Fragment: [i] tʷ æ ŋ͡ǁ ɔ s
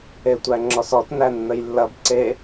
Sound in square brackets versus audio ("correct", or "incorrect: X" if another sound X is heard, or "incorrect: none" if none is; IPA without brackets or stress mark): incorrect: e